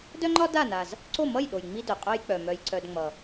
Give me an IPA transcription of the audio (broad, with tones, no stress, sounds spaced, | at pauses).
d œ˥ ŋ͡ǃ ɒ˥ d a˥˩ n a˨˩ z | ǀ o˥˩ m ʌ˥˩ j ɗ o˨˩ j ŋ͡m i˥ d œ˨˩ qʼ œ˥ j k͡p œ˨˩ m œ˧ j ǀ œ˧ d ŋ͡m ʌ˨˩